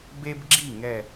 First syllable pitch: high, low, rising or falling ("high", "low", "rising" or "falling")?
high